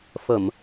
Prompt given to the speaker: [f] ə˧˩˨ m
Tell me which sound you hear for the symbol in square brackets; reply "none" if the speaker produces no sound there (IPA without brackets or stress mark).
f